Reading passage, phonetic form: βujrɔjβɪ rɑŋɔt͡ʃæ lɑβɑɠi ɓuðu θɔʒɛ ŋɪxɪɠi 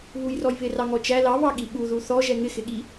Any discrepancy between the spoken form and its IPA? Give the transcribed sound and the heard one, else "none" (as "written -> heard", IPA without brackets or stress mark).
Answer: none